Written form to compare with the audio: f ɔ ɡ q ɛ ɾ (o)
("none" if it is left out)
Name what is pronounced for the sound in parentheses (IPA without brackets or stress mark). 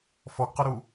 u